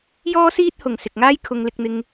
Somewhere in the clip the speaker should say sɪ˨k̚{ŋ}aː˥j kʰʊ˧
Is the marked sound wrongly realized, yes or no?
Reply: no